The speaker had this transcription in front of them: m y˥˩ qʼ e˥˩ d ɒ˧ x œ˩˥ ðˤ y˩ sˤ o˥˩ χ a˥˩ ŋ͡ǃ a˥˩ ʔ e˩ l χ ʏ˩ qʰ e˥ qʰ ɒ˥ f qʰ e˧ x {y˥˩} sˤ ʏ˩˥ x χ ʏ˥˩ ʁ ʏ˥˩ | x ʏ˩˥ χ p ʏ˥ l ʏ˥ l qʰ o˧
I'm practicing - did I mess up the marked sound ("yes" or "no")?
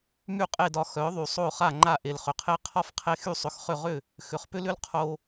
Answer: no